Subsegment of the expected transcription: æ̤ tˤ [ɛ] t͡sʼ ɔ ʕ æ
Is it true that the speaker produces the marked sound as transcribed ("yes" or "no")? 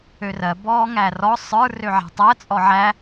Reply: no